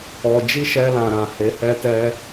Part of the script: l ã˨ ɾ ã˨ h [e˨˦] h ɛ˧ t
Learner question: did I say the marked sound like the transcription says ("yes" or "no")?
yes